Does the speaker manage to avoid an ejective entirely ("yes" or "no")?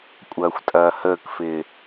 no